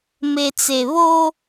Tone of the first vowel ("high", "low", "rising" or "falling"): low